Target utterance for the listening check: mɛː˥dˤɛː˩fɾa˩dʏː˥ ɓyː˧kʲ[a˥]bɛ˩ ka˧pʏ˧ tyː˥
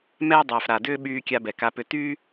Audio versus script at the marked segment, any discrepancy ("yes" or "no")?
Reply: yes